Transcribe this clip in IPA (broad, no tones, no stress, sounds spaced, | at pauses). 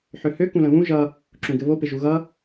ħ ø h ø k ũ l ə̃ β ũ ʒ ʌ | ǁ ũ ɡ ɘ β o p ɪ ʒ u ɣ ʌ